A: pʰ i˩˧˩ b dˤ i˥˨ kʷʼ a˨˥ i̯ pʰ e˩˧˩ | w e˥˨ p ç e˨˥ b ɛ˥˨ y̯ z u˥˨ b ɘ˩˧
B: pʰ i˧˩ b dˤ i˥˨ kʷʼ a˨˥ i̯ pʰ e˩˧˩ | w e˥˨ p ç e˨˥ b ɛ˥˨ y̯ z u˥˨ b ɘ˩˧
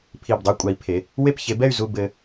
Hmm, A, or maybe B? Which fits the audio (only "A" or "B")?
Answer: B